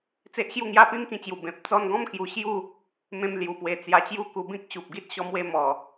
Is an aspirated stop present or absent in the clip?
absent